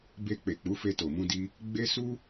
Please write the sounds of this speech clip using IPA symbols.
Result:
b e˧ k͡p e˨ k͡p u˨˦ f e˧ t o˨ m ũ˧ d i˧ | ɡ͡b e˦ s u˦

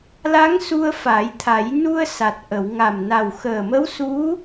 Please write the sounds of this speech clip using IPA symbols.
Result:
l a˧˥ ŋ s u˧ ə̯ f a˨˩˦ j t̪ʰ a˨˩˦ j n u˧ ə̯ s a˨˩ t̚ ʔ ə˨˩˨ w ŋ a˨˩ m n a˨˩ w x əː˨˩ m ə˧˥ w s u˧˥

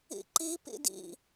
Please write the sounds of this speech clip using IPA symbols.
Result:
ḭ ǃ i p ḭ d ḭ

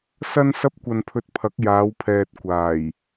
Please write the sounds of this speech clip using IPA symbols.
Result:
s ɐ˥ n s ɐ˥ p̚ kʷ ɐ˧ n pʰ ɵ˧ t̚ pʰ ɐ˨˥ k̚ j aː˨˧ w pʰ ɛː˨ t̚ kʷ aː˨˩ j

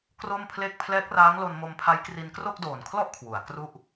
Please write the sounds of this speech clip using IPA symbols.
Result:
k r o˥˩ m pʰ l e˥˩ k̚ pʰ l ɛː˦˥ k̚ r aː˦˥ ŋ l o˧ n m o˧ m pʰ a˦˥ j k r i˧ n k r o˥˩ k̚ d oː˨˩ n kʰ l ɔ˥˩ ʔ kʰ w u˩˦ a̯ k r u˥˩ ʔ

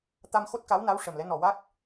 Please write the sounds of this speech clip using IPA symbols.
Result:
t̪ a˧ m x o˦˥ t̚ k a˧˥ w n a˧˥ w ʂ ə˨˩ m l ɛ˧˥ n ɔ˨˩ w a˦˥ k̚

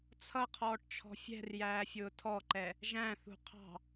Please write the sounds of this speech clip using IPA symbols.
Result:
t͡sʰ ʌ qʰ ɔː ʈ t͡ʃʰ ɔ̤ fʲ ɛ̤ r j æː fʲ ʊː tʰ ɔ ǃ ɛ | ʒ æ̃ θ ṳ qʰ ɑ̤

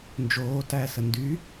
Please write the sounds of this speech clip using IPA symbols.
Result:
n d͡ʒ oː t æː s ə n d y

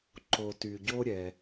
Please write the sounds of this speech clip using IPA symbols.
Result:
ǃ o˩ t y˩ ɟ o˧ ɾʲ ɛ˩

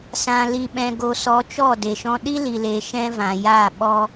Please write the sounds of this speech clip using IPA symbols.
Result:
s ã˧ l i˧ ɓ ɛ̃˧ ɡ o˧ s ɔ˧ t͡ʃ ɔ˦˨ d e˨ ʃ ɔ̃˧ ɗ i˦ l i˨ l eː˨ ʃ ɛ̃˦ v ã˨ j aː˦˨ ɓ ɔ˦

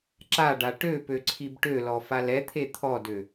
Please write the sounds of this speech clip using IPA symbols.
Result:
ǁ a ɖ a ʈ ø p ø ǀʰ i b ʈ ø l ɔ f a l ɛ t̪ʰ e t̪ʰ ɔ d ø

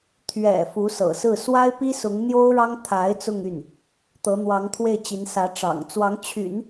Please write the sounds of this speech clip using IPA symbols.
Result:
t̪ʰ ɥ ɛ̰˨˩ f u˧˥ s ɤ̰˨˩ s ɹ̩˥˩ s w a˥ ɪ̯ p i˥ s ʊ˧˥ ŋ n̪ j o˥ ʊ̯ ɻ ɑ˥ ŋ t̪ʰ a˧˥ ɪ̯ t͡s ʊ˥˧ ŋ y˥˩ n | t̪ ɤ˧˥ n̪ w ɑ˧˥ ŋ t̪ʰ w e˥˩ ɪ̯ t͡ɕ i˧˥ n s ä˧˥ ʈ͡ʂ ɑ̰˨˩ ŋ t͡s w ɑ˧˥ ŋ t͡ɕʰ y̰˨˩˦ n

